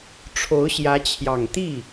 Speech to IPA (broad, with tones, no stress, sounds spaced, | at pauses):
ʈ͡ʂʰ o˧˥ ʊ̯ ɕ j ä˧˥ t͡ɕʰ j ɑ˨˩ ŋ t̪ i˥˩